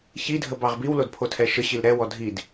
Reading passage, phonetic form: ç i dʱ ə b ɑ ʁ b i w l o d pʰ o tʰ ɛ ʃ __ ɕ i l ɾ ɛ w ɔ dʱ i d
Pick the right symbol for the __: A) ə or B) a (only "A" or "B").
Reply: A